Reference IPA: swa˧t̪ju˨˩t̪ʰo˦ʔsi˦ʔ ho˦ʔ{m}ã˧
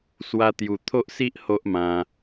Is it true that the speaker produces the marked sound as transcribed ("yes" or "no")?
yes